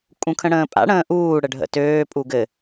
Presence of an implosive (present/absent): absent